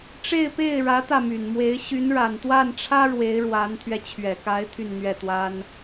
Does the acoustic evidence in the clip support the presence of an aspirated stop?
yes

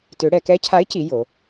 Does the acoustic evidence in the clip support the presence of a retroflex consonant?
yes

